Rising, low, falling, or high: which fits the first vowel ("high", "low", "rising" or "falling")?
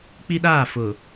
high